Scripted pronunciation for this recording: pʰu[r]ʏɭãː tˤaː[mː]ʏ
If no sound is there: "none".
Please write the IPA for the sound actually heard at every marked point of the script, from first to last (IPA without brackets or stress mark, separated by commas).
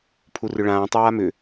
r, m